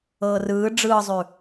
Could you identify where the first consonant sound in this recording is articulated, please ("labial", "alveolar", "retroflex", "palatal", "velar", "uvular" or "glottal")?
alveolar